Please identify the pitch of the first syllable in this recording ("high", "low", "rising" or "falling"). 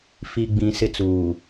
low